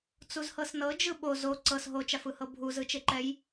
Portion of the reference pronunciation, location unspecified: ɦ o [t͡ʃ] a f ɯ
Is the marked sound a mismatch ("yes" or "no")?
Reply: no